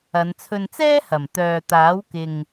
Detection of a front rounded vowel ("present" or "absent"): present